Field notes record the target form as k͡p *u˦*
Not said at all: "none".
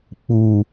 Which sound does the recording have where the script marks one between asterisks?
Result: u˨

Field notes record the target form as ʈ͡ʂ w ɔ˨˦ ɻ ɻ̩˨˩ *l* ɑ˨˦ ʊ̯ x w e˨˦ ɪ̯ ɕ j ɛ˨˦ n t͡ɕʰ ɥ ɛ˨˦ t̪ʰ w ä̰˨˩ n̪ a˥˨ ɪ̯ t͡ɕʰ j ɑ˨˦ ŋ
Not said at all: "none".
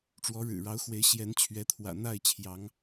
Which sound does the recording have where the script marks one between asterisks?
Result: ɻ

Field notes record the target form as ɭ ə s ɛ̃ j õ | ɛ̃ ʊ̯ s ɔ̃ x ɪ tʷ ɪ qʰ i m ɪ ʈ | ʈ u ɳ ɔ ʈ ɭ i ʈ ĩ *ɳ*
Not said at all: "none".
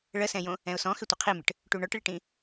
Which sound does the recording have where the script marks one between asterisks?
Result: none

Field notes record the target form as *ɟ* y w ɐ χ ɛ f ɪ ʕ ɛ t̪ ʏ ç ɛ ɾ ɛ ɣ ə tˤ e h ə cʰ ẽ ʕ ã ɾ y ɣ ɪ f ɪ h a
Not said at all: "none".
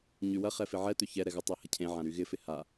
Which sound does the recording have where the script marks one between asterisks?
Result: ɲ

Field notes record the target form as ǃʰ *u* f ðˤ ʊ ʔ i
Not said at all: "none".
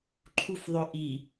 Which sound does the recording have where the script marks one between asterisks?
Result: u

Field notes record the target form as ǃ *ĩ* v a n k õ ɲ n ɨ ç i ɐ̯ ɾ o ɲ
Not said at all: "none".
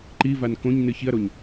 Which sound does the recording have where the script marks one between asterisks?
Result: i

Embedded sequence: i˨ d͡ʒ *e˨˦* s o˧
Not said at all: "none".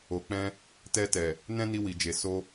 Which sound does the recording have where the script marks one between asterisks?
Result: e˨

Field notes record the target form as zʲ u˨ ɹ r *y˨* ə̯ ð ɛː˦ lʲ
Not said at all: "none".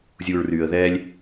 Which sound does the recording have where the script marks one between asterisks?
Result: y˨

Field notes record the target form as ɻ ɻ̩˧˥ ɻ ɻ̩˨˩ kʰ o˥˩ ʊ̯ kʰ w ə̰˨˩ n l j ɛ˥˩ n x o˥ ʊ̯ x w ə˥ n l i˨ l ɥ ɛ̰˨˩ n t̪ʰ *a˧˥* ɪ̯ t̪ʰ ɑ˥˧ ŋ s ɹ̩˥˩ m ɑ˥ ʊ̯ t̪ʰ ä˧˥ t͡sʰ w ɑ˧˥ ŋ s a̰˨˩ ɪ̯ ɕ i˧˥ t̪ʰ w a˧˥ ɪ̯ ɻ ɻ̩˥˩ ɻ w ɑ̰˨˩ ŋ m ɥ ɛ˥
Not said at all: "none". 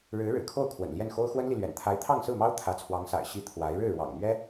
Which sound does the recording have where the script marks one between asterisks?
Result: a˧˥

